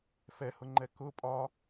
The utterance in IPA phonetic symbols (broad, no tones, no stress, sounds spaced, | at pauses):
f ɛ h ʊ ŋ͡ǃ ɛ k ʊ pʼ ɒ